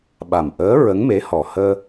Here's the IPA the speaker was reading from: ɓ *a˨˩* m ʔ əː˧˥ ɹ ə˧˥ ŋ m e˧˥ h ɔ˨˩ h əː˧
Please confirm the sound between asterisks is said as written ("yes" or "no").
yes